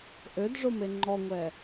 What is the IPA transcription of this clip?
ʔ ø d ʐ o m e ŋ͡ǃ ɔ ŋʷ ɛ

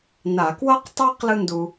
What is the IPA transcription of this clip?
n a˧˩˧ k w ʌ˥ q tˤ a˥ q l ɯ˥ n d u˧

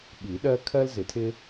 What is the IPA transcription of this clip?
ɓ i˨˩˦ ɗ ɜ˦ kʰ ɜ˦ l z ɪ˨˩˦ tʰ ɪ˦

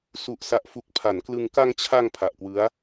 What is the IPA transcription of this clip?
s u˨˩ ʔ s a˨˩ ʔ f u˨˩ k̚ pʰ a˩˦ n k l ɯ˧ ŋ k a˧ ŋ t͡ɕʰ a˧ ŋ pʰ a˨˩ ʔ k w ɯ˦˥ a̯

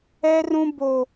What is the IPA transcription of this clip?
ɛ˦ r ũ˦ b o˦

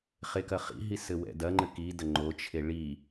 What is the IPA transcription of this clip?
χ e k ɐ χ ḭ ɦ i s ɘ w ɛ̰ d ɐ ŋ͡ǃ ɘ k i d ɐ ŋ͡ǃ o t͡ʃʰ e ɭ i

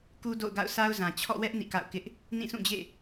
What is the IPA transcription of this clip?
k u˦ d o̰˦˨ ʊ̯ ɡ a̰˦˨ ʊ̯ sʰ a˦ ʊ̯ z ã˨ t͡ɕʰ ɔ̰˦˨ w ɛ˦ ʔ n ḭ˦˨ k a̰˦˨ ʊ̯ k ɪ˦ ʔ | n ĩ˦˨ sʰ ũ˦˨ d͡ʑ ḛ˦˨

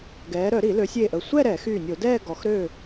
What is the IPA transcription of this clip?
ɡ ɛː˩˧ ɾ œ˧˩˧ ɾ i˧˩˧ l ø˩˧ sʲ eː˧˩ ʔ ə˧˩ sʷ ɛ˥˧ ɾ ɛ˧˩˧ x yː˧˩ nʲ o˧˩˧ d ɛː˥˧ ɡ ɔ˩˧ x ɾ ø˧˩

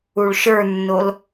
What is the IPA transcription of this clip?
u ɭ ʃ ə˞ nː o l

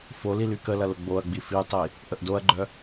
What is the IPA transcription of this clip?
f o l i l y k ə l ɐ l ʊ ɡ͡b o ɐ̯ ɡ͡b i f i tˤ i | ʔ ə ʔ d o ɐ̯ ɡ͡ǃ œ

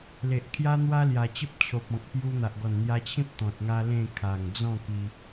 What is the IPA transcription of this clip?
l e˨ ʔ kʰ j a˦ n̪ w a˦ l j a˨˩ t͡ɕ ə˦ p̚ t͡ɕʰ o˨ p̚ ɔ̃˨ k̚ p j u˧ n̪ a˨ ʔ ɡ ɔ˨˩ n n̪ j a˧ t͡ɕʰ ĩ˦ p̚ t̪ ɔ̃˨ t̚ ŋ a˦ l ẽ˥˧ kʰ a˨˩ ŋ d͡z ɔ̃˥˧ k i˧

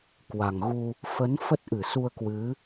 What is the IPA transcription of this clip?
k w a˨˩ ŋ ɣ u˧ | f ə˨˦ n f ə˦˥ t̚ ʔ ɨ˧˩ s u˧ ə̯ k w ɨ˨˦

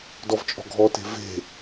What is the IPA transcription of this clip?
d ɔ v t͡ʃʼ ɔ̤ ɡʱ ɔ t e̤ v e̤

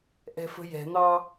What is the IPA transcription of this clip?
ʔ ɛ̤ f ə̤ j ɛ̤ n̪ ɑ

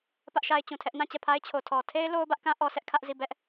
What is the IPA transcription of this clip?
p ä˦ ʔ ʃ a˦ ɪ̯ t͡ɕ ũ˨ tʰ ɛ˦ ʔ n ã˦˨ t͡ɕ ɛ˦˨ pʰ a˦ ɪ̯ t͡ɕʰ o˨ tʰ ɔ˨ tʰ e˦ ɪ̯ l o˦ ʊ̯ b ä˦ ʔ k ã˦ ʔ ɔ˦ s ɛ˦ ʔ kʰ ä˦ ʔ z i˦˨ b ɛ˦ ʔ

